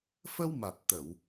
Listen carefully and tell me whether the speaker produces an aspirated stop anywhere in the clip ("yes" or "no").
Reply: no